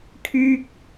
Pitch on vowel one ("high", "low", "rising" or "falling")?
high